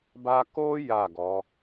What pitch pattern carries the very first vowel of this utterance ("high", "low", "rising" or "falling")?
high